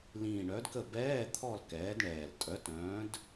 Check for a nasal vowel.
present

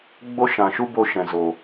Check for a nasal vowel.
present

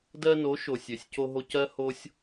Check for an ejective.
absent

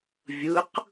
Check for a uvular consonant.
present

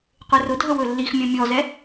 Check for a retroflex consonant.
absent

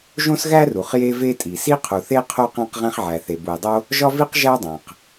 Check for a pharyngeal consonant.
present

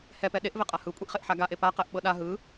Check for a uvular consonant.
present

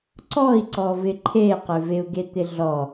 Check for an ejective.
absent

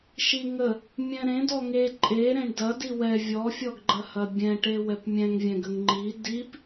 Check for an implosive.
absent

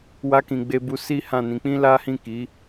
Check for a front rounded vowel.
absent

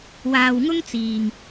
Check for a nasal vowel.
absent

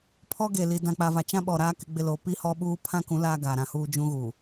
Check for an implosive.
present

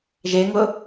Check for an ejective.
absent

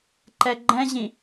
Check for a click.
present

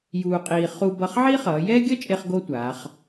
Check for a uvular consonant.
present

